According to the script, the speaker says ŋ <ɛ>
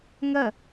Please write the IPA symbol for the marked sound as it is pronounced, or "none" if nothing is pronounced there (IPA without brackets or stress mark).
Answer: ɜ